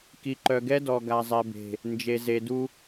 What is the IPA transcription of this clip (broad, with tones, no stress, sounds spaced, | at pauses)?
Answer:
k i˨ ǃ œ˨ ɡ ɛ˦ d ɔ˨ ɡ a˨ zˤ ɛ˨ b e̤˨ | n d͡ʒ e˨ z e˨ d u˦